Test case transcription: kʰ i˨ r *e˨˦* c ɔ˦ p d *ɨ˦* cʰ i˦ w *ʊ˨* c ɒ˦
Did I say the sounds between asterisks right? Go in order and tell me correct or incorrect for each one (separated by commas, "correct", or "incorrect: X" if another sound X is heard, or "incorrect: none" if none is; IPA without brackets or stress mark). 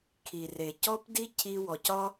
incorrect: e˨, incorrect: i˦, incorrect: ɔ˨